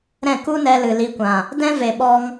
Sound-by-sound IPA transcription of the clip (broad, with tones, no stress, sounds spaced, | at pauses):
ɾ ɛ̃˦˨ k u˦ n ɛ˧ l ɨ˨ l i˧ kʷ ã˨ | d ɛ̃˦ v e˨ ɓ ɔ˧ ŋ